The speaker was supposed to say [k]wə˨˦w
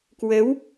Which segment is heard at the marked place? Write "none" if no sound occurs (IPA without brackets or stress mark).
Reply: k